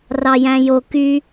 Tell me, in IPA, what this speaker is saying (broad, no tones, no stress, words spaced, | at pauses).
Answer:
rɑjæ̃jo ky